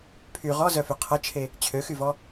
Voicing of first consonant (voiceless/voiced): voiceless